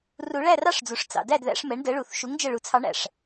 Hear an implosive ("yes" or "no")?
no